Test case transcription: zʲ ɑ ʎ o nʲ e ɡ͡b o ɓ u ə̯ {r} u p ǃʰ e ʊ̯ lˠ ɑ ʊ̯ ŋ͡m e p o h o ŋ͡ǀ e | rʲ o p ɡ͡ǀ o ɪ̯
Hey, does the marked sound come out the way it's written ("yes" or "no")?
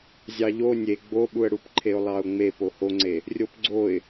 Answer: no